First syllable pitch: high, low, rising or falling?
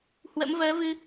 rising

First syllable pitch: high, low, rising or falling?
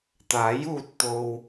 rising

